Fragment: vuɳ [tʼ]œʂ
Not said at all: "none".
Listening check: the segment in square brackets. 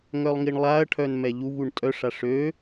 tʼ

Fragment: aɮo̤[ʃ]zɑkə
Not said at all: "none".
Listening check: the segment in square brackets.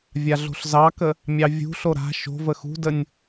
ɬ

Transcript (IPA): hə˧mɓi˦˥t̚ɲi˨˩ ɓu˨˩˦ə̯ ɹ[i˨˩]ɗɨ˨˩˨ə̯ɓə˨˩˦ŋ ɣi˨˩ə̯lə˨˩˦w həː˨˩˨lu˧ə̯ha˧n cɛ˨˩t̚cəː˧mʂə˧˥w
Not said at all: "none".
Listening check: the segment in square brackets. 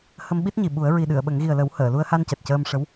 i˨˩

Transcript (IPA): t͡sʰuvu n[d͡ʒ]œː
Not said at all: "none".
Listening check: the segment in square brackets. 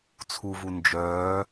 d͡ʒ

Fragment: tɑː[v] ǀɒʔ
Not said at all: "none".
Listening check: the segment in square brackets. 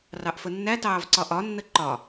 v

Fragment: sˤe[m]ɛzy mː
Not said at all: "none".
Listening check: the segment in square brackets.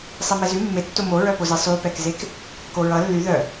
m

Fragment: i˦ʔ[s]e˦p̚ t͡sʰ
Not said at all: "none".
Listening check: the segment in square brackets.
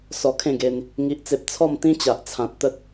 t͡s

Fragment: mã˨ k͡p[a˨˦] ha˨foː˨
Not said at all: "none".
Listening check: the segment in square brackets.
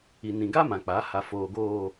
a˨˦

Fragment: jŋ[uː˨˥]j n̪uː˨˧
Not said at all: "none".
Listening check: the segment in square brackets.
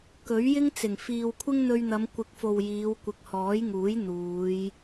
uː˨˥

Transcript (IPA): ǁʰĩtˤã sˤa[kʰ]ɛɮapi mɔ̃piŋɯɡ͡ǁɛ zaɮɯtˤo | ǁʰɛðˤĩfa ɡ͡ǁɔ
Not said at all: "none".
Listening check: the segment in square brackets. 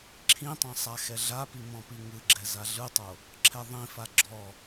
x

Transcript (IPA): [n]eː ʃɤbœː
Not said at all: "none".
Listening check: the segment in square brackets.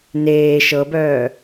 n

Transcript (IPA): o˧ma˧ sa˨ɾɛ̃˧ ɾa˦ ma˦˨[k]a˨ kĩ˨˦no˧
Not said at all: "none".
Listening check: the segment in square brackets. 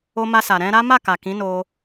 k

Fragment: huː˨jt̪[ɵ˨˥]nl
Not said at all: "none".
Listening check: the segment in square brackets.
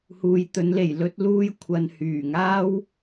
ɵ˨˥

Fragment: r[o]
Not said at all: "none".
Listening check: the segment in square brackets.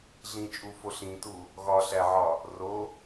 o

